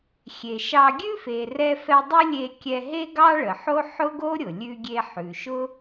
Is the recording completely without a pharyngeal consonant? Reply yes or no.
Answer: no